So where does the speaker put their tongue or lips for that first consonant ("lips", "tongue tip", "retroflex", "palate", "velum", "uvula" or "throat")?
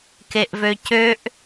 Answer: velum